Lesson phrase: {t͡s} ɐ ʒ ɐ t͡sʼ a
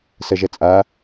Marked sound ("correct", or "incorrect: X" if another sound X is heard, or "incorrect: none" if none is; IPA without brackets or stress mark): incorrect: s